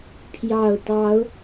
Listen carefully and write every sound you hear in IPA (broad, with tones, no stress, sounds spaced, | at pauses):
pʰ j ɑ˨˩ ʊ̯ t̪ ɑ˨˦ ʊ̯